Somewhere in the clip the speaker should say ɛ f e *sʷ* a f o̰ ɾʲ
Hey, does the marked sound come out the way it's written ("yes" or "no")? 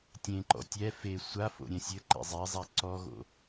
yes